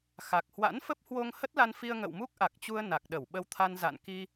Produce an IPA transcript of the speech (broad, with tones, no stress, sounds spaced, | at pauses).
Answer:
x a˨˩ k̚ h w a̰˧˥ n f ə˦˥ p̚ h w o˧ ŋ h ə˦˥ t̚ l a˧ n f i˧ ə̯ ŋ ə̰˧˨ w m u˦˥ k̚ ʔ a˨˩ k̚ t͡ɕ u˧ ə̯ n a˨˩ k̚ ɗ ə˧˩ w ɓ ə˧ w t̪ʰ a˧ n z a̰˧˨ n k i˧